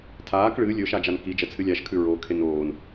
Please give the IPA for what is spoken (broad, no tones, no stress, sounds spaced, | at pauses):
tʰ aː k ɭ ɨ lʲ ɵ ʃ a d͡ʒ a n k i d͡ʒ ɐ t͡sʰ ɨ lʲ a ʃ kʰ ʉ ɹ o kʰ e n oː n